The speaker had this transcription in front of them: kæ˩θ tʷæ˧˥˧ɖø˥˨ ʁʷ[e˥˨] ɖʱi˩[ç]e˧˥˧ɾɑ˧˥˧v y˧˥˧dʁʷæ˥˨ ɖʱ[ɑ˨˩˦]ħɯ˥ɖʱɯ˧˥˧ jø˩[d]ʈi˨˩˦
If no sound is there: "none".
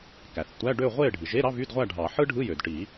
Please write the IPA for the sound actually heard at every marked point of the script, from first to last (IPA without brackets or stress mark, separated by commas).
e˥˨, ʒ, ɑ˨˩˦, d